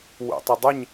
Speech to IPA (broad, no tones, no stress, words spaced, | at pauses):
wṵtˤədˤəɲ